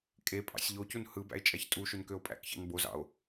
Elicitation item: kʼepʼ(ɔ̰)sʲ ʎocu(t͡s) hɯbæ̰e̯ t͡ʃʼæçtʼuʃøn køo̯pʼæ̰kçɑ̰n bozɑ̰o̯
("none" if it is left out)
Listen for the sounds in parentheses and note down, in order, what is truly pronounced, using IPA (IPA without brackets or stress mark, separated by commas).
ɑ̰, n